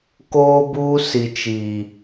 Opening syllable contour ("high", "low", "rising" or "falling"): high